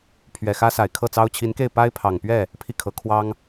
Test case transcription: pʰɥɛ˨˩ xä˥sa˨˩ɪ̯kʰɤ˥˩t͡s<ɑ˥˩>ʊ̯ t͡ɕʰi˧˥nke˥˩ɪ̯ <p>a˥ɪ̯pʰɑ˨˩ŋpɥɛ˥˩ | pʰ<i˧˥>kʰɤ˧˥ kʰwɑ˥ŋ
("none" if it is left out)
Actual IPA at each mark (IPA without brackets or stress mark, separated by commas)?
ɑ˥, p, i˥˩